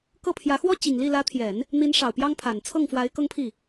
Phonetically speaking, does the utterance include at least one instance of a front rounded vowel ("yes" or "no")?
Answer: no